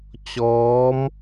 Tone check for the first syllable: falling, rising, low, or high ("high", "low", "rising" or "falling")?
rising